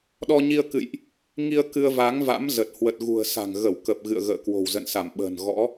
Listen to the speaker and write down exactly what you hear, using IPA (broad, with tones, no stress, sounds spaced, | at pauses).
ɗ ɔ˧ ɲ i˧ ə̯ k ɨ̰˧˨ j ʔ | ŋ i˧ ə̯ k ɨ˧ ə̯ v a˨˦ ŋ v a̰˧˥ m z ə˨˩ t̚ h w ə˨˩ t̚ ɣ ṳ˨˩ ə̯ s a̤˨˩ ŋ ɣ ə˧˩ w k ə˨˩ p̚ ɣ ɨ̰˧˨ ə̯ ɣ ə̰ː˧˨ k w o̤˨˩ w z ə̰˧˨ n s a˧˩ m ɓ ə̤ː˨˩ n ɣ ɔ̰˧˥